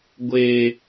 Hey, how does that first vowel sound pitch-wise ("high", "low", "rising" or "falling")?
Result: high